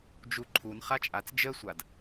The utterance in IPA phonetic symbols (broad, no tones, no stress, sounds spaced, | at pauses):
d͡ʒ u ǃʰ u n χ a t͡ʃʼ a t͡s d͡ʒ ə sʷ a d